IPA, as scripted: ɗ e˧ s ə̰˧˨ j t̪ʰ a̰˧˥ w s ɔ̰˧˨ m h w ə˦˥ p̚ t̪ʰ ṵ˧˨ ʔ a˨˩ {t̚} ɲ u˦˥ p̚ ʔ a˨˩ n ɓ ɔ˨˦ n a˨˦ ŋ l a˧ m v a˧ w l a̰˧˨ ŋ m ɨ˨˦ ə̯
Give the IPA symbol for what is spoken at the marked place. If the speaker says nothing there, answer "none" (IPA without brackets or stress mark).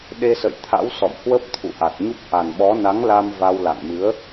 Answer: t̚